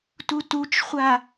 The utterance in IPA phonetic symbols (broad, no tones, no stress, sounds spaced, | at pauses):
t u t u t͡ʃ χʷ a